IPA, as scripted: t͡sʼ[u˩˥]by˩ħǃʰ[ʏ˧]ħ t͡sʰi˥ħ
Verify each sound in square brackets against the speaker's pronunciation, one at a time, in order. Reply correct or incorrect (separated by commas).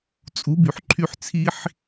correct, incorrect